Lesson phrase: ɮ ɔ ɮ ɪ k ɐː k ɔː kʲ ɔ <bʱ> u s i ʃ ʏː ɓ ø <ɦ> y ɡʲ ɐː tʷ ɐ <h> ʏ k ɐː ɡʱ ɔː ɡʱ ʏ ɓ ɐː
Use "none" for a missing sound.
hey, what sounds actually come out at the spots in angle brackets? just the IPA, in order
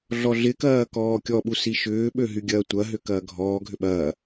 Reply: ɓ, ɦ, ɦ

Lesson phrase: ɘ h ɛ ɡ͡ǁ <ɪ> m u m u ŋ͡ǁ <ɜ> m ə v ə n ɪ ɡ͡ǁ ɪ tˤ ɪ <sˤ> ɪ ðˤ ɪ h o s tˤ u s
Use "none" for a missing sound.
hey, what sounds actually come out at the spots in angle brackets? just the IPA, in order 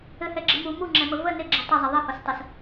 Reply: ɪ, ɛ, zˤ

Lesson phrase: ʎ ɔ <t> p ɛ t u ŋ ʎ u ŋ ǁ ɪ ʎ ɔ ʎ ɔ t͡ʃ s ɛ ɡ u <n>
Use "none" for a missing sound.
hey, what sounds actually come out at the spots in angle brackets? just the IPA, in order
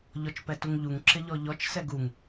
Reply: t͡ʃ, ŋ

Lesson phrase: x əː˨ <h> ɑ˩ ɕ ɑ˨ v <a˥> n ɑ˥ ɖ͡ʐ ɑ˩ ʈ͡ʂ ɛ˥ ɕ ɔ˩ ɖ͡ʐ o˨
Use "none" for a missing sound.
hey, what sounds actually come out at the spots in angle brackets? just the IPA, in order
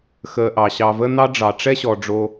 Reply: ʔ, ə˥

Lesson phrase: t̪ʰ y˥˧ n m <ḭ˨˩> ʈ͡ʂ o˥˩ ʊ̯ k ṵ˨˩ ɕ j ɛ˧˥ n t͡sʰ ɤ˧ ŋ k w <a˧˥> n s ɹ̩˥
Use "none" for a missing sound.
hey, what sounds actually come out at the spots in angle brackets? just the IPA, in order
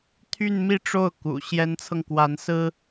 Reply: i˥˧, a˧˥

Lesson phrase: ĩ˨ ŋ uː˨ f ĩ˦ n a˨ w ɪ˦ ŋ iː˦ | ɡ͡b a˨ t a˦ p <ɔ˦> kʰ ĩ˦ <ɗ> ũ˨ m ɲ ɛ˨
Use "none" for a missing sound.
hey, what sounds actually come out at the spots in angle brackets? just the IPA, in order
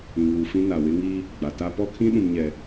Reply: ɔ˦, ɗ

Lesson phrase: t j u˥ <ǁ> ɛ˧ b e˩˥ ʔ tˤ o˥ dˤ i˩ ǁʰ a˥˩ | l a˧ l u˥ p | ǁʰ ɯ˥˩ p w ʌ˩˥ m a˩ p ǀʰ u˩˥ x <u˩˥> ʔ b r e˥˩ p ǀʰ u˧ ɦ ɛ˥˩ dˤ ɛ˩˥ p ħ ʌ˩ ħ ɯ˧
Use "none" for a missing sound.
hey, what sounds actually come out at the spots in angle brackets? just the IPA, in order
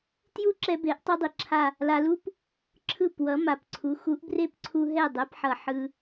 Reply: ǁ, u˩˥

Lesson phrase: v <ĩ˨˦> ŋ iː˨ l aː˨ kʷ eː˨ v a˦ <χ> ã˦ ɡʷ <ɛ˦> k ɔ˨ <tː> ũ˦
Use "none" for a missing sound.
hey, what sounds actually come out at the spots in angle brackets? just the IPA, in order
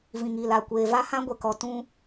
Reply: ĩ˨, h, ɛ˨, t

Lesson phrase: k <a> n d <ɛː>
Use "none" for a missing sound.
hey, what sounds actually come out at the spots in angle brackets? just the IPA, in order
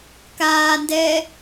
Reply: aː, ɛː

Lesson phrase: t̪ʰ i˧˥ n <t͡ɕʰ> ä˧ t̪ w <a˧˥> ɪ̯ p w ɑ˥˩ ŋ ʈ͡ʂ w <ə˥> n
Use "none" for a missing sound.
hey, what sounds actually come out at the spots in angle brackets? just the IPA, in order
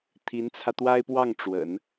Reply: t͡sʰ, a˥, ə̰˨˩˦

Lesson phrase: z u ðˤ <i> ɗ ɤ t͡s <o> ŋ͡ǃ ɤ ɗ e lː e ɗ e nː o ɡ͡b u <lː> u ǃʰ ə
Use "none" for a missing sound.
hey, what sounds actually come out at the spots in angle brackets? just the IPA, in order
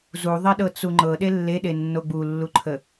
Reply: i, u, lː

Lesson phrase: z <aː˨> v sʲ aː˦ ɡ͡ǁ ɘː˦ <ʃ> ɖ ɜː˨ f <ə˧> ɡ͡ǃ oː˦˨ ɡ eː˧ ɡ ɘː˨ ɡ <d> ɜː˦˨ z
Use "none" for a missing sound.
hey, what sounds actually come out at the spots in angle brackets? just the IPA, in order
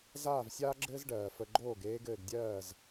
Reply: aː˦˨, z, ə˧, dʲ

